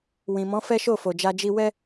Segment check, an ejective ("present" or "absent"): absent